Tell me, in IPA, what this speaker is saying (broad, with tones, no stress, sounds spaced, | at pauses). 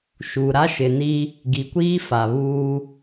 ʃ u˨ ɾ a˦ ʃ ɪ˨ n i˦ | ɡ i˨ kʷ iː˦ f a˨ β uː˦